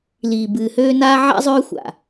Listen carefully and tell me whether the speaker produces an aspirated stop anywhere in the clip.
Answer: no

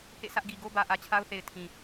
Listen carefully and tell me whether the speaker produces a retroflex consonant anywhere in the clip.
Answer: no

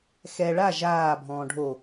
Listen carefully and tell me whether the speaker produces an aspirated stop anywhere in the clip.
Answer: no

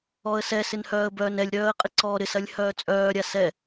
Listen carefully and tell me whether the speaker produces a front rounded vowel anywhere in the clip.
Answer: yes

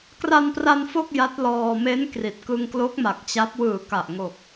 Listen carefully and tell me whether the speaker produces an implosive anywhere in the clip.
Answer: no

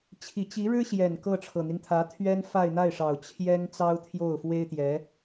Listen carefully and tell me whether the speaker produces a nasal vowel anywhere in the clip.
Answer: no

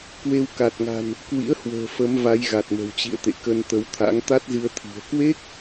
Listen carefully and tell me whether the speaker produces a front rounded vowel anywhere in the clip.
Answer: no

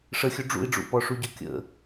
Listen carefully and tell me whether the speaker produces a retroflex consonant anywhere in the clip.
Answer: yes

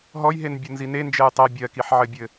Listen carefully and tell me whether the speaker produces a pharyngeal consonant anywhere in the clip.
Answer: yes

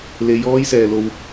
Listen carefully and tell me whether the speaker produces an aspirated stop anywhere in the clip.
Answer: no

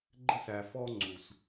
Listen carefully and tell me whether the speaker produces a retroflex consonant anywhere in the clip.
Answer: no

